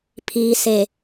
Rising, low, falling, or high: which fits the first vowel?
low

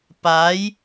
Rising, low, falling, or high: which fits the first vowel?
rising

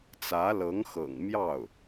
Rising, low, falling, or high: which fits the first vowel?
rising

